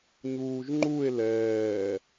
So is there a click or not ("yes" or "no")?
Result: yes